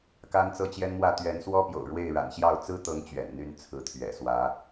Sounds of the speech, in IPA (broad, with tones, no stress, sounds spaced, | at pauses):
k a˦ n t͡s ɤ˦ t͡ɕ j ɛ˦ n m w ä˥˨ t̪ ɥ ɛ˨˦ n s w ɔ˦ p j o̰˨˩ ʊ̯ ɻ w e˥˨ ɪ̯ ɻ a̰˨˩ n ɕ j ɑ˥˨ ʊ̯ t͡s ɹ̩˦ t̪ ɤ˨˦ ŋ t͡ɕ ɥ ɛ̰˨˩ n n̪ y˥˨ n t͡sʰ ɹ̩˨˦ t̪ʰ ɥ ɛ̰˨˩ s w ä˨˦